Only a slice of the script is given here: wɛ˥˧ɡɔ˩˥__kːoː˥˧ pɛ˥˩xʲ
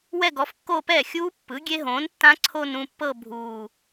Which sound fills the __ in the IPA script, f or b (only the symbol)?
f